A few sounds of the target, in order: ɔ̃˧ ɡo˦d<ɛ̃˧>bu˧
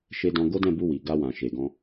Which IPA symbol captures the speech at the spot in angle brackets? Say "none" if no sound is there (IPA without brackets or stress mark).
ɛ̃˦˨